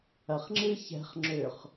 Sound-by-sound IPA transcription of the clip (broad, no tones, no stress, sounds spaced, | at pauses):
ɐ χ ŋ͡ǁ ɨ ç ɛ̤ χ ŋ͡ǁ ʏ χ